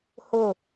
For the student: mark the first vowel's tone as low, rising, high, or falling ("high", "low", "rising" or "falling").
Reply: falling